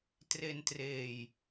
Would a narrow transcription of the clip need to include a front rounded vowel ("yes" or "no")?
no